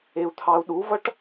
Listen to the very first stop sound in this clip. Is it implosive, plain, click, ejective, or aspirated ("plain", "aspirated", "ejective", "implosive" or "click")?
aspirated